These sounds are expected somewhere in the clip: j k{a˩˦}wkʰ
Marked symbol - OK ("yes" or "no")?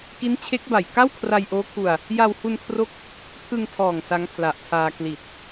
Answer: no